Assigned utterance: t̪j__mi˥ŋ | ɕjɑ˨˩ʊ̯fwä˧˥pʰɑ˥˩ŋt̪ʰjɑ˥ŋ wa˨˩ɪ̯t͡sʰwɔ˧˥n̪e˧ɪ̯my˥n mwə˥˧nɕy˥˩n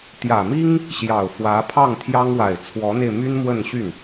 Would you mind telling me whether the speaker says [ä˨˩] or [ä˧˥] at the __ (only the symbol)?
ä˨˩